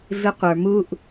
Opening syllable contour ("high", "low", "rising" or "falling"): high